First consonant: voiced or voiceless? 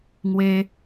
voiced